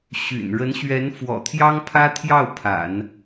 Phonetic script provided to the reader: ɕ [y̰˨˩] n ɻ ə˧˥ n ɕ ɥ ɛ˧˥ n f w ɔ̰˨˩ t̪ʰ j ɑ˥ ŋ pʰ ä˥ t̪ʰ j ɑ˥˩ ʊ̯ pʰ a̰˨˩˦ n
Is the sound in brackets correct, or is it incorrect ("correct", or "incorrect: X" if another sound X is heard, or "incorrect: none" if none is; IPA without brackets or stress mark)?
correct